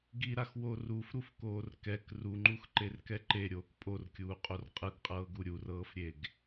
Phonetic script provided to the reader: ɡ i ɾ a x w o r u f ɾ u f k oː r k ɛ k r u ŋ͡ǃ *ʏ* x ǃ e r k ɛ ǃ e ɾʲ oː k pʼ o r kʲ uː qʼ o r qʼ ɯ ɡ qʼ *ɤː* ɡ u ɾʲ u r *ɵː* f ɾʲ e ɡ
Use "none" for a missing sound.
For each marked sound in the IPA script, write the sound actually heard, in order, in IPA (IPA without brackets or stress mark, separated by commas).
u, ɤː, ɤː